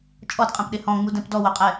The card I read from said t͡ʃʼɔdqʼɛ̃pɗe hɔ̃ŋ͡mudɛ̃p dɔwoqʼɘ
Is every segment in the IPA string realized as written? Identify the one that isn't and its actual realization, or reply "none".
ɘ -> ɛ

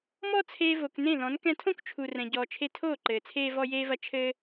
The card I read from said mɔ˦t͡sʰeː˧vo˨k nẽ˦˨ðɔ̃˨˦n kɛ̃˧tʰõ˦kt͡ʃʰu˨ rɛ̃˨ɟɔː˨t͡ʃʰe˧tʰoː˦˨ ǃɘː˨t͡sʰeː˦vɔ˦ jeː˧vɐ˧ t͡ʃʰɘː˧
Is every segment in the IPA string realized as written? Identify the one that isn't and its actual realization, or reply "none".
none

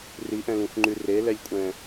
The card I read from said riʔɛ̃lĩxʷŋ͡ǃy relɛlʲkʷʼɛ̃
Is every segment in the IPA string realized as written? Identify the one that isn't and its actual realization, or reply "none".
none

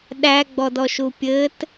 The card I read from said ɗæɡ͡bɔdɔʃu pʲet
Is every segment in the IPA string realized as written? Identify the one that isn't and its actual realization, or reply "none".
e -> ɘ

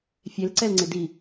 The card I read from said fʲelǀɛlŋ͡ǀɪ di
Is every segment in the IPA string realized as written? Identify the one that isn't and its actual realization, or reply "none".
none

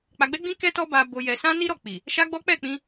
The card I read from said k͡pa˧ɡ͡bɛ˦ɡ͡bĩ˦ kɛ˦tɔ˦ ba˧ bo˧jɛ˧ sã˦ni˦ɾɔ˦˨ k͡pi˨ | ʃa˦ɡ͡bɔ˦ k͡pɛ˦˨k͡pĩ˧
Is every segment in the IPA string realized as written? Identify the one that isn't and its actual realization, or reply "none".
none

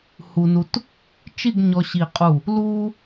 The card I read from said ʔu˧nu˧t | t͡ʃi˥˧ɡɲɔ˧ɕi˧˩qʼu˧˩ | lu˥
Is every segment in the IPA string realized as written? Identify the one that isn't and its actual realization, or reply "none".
ʔ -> h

